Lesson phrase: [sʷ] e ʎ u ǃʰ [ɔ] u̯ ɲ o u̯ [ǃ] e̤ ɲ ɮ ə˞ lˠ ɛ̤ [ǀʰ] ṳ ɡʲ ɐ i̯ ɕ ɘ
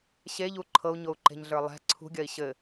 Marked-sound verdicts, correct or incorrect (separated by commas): incorrect, incorrect, correct, correct